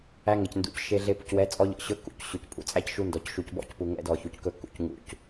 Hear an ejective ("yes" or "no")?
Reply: yes